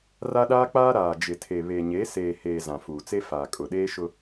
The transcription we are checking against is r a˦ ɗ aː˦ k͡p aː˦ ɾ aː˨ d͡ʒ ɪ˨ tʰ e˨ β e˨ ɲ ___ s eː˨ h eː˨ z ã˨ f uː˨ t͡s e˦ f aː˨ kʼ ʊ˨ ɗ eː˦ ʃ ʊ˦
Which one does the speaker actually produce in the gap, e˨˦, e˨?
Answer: e˨˦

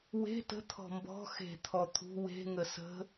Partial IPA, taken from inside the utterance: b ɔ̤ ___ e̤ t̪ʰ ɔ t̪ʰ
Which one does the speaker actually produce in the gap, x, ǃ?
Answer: x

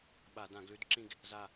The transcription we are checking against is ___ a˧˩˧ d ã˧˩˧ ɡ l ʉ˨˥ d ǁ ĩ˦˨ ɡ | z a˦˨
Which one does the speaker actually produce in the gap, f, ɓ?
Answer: ɓ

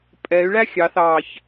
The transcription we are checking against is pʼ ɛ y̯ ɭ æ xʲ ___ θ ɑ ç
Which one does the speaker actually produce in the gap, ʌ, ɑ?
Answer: ɑ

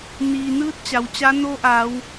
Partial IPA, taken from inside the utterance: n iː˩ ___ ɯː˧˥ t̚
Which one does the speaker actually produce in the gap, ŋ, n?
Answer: n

